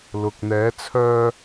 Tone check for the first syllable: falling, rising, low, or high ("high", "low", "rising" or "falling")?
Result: low